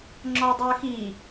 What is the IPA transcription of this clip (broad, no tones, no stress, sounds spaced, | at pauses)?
ŋ͡ǁ ɔ ɐ̯ dˤ u ɐ̯ x i